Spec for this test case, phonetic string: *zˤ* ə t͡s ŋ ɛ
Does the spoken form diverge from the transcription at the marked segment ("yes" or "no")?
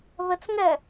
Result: yes